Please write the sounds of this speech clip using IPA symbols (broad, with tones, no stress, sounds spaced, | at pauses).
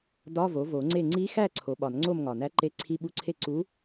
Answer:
d ɒ˧˥˧ v o˩˥ v o˨˩˦ ŋ͡ǀ e˥˨ ŋ͡ǀ i˧˥ x æ˥˨ ǀʰ o˩˥ ɓ ɒ˨˩˦ n ŋ͡ǀ o˥˨ m ŋ ɒ˨˩ n æ˧˥ ǃ e˧˥ ǀʰ i˧˥˧ ɓ u˧˥˧ ǀʰ e˥˨ ǀ u˧˥